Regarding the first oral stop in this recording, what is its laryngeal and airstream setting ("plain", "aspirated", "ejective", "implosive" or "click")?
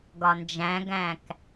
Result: plain